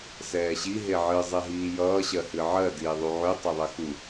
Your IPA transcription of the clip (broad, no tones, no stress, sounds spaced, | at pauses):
s ɛː ɕ i ɦ e ʕ ɨ zˤ e ɦ iː j ʌː ɕ ɜ h ɨ ʕ ɜ d iː ðˤ u ʕ y tˤ e ðˤ ɛ x u